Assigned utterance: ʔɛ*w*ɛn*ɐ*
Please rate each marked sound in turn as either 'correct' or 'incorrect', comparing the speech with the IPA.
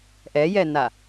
incorrect: j, incorrect: a

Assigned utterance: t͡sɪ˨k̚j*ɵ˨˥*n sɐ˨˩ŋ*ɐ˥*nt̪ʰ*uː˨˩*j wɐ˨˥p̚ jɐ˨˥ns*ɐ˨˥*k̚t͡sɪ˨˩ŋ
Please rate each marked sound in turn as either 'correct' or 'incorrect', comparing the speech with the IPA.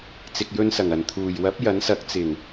incorrect: ɵ˧, incorrect: ɐ˨˩, correct, correct

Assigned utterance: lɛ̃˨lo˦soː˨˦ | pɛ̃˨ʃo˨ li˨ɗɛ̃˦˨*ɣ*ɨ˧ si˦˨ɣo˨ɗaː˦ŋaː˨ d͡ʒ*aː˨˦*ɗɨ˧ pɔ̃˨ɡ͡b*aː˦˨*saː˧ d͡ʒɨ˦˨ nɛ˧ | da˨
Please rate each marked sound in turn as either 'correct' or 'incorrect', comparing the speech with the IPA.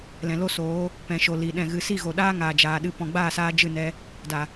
correct, incorrect: aː˨, correct

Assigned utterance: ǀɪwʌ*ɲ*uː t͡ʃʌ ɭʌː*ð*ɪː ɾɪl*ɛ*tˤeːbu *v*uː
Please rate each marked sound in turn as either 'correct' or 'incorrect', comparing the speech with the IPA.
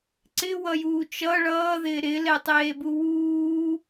incorrect: j, correct, correct, incorrect: w

